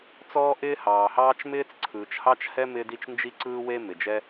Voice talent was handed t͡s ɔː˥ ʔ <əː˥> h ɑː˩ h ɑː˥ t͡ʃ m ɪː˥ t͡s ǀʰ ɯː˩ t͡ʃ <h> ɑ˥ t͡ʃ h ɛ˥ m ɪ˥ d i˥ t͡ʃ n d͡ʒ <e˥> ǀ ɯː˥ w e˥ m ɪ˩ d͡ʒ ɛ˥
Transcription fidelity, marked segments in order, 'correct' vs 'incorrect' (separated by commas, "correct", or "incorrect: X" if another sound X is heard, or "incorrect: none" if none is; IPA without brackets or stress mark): incorrect: ɪː˥, correct, incorrect: i˥